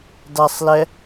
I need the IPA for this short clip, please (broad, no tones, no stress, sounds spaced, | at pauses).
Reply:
d a sˤ l ɛ